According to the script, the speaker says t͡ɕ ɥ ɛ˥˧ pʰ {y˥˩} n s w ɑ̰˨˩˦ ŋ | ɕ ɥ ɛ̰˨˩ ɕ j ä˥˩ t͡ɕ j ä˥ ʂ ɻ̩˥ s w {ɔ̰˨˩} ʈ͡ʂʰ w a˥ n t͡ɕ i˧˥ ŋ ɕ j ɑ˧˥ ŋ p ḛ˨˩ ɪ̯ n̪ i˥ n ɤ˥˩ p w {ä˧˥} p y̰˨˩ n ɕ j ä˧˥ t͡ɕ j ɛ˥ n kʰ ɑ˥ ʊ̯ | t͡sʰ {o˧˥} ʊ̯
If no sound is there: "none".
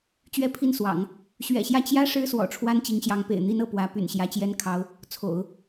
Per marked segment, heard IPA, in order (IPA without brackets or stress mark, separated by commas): i˥˩, ɔ̰˨˩, ä˧˥, o̰˨˩˦